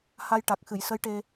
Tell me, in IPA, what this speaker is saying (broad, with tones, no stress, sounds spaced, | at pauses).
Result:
h a˧ j ʈ a˨˩ k̚ x ɨ˨˩˨ j s ə˧˥ j ʈ e˧